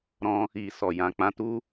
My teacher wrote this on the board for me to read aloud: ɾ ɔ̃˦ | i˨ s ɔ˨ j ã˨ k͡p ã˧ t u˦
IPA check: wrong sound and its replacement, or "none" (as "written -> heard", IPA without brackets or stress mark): none